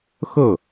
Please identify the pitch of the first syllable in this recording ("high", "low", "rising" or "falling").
falling